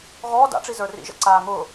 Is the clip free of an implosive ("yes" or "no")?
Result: yes